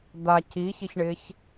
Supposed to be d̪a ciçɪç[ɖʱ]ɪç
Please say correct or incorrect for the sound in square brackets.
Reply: incorrect